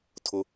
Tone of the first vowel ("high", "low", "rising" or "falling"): high